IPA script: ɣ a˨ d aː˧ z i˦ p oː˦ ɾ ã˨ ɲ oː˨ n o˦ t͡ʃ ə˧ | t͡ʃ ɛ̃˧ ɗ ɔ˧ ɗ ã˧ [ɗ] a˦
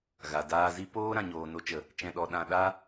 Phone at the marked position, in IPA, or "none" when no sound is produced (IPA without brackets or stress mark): ɗ